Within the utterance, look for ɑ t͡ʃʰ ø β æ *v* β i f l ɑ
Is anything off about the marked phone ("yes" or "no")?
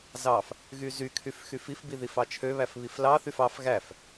yes